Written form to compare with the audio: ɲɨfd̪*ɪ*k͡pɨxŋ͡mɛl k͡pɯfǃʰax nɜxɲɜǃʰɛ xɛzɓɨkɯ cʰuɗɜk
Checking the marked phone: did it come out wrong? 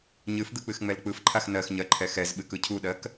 yes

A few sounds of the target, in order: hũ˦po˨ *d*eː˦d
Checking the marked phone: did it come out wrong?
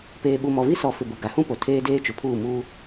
yes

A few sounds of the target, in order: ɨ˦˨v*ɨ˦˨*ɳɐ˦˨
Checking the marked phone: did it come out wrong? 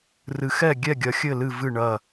no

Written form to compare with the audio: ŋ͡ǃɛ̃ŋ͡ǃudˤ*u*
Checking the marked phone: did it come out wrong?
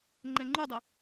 yes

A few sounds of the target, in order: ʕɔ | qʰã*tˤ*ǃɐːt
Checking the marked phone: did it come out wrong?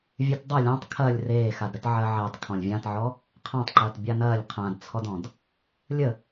no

